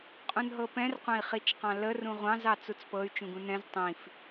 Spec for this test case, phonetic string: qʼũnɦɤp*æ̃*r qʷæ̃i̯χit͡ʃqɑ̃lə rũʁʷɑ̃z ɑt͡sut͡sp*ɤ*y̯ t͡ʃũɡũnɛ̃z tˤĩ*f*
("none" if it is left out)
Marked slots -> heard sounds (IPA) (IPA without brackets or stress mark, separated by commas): ɛ̃, ɤ, f